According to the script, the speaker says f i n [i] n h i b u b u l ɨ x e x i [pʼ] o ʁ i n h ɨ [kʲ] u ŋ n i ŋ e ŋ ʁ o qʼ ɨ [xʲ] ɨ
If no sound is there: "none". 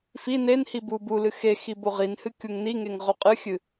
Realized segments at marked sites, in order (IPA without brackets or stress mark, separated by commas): e, b, kʲ, xʲ